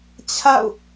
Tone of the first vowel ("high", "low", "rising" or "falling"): falling